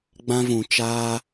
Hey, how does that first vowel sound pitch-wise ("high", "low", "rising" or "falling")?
high